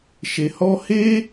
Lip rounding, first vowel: unrounded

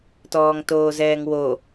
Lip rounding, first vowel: rounded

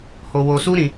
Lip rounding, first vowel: rounded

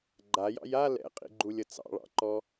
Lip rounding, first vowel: unrounded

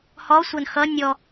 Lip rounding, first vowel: rounded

